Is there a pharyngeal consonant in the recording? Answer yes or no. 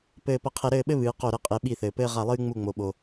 no